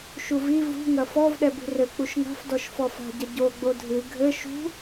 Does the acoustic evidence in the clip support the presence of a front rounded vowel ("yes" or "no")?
no